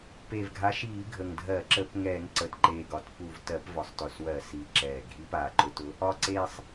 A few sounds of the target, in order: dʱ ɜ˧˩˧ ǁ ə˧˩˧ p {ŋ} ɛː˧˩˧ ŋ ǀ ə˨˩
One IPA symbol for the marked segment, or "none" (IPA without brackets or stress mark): ŋ